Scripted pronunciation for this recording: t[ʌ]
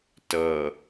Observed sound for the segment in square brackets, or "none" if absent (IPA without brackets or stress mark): ʌ